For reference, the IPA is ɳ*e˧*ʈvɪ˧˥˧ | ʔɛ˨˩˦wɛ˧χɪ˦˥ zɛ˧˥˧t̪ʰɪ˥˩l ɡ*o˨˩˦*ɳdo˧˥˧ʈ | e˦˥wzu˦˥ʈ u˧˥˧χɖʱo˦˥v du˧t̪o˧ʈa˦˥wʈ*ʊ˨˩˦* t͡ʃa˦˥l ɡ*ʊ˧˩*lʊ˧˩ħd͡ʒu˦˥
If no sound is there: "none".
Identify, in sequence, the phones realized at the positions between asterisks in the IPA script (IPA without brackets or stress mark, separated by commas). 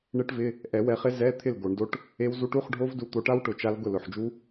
e˦˥, o˨˩˦, ʊ˨˩˦, ʊ˥˩